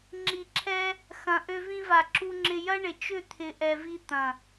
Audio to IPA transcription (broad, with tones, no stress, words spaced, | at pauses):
ŋ͡ǁi˨ǁʰɛ˧ | xɐ̃˧ ʔø˧vĩ˧va˨ ǁu˧ŋ͡ǁɪ˧jɐ˦ ɳɪ˨t͡ʃʏ˦˨ t̪ʰɪ˨ʔɛ˨vi˧ t̪ɐ̃˨